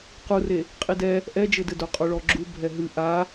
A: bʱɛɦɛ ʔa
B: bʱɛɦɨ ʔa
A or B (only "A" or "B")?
B